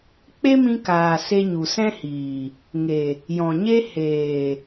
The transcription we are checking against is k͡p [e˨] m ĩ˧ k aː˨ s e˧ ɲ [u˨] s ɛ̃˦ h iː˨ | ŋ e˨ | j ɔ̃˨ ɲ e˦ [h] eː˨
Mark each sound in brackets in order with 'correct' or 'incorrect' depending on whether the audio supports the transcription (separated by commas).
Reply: incorrect, correct, correct